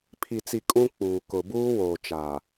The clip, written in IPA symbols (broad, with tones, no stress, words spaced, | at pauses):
pʰi˨t͡si˨ kʼũ˦k͡puː˨ kʊ˨buː˦woː˨ t͡ʃaː˨